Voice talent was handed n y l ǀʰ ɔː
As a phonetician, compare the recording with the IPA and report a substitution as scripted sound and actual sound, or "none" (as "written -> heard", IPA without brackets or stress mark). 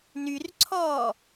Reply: l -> r